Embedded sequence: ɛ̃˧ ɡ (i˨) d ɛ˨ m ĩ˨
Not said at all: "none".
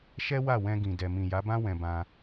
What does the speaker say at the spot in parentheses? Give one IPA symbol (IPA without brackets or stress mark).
ĩ˨